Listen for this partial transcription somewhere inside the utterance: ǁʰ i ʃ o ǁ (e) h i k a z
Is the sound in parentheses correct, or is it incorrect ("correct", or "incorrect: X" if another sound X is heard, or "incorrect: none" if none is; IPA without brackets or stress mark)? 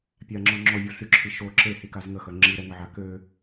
correct